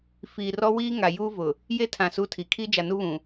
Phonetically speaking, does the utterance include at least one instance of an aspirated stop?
yes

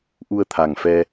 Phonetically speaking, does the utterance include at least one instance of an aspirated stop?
yes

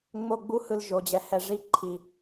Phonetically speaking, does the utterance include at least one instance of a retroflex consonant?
yes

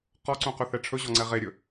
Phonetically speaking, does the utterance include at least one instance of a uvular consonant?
yes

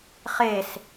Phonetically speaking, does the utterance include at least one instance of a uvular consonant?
yes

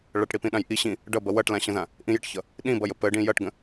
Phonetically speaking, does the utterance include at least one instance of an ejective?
no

